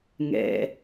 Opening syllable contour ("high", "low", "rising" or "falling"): low